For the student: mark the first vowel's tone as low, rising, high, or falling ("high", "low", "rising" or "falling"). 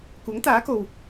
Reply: rising